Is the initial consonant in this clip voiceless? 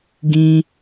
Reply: no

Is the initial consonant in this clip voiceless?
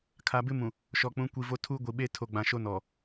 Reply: yes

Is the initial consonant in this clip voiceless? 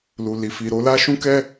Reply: no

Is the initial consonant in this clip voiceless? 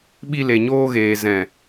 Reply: no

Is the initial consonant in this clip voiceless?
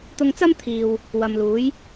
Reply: yes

